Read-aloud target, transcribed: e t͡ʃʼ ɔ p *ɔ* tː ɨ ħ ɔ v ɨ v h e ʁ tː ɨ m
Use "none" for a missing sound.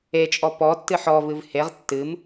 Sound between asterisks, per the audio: ɔ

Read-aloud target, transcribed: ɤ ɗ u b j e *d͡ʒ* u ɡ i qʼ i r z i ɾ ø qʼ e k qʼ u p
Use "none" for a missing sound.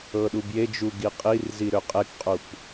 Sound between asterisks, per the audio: d͡ʒ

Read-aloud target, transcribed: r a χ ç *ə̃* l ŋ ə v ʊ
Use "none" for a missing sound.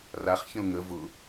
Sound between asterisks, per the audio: ə̃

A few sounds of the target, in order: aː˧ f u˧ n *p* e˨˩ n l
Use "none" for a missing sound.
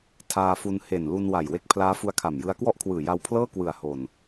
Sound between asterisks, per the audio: h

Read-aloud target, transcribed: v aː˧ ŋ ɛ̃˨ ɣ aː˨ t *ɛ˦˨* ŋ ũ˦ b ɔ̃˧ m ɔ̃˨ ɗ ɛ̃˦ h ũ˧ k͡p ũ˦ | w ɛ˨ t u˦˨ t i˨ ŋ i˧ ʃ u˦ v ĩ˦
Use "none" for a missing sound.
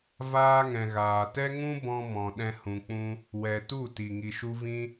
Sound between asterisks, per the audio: ɛ˦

